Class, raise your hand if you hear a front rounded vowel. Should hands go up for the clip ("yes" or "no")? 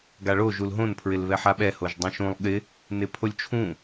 no